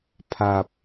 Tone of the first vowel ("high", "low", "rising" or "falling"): low